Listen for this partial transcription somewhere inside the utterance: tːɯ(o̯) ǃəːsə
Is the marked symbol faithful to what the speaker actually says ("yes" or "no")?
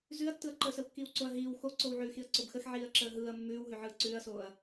no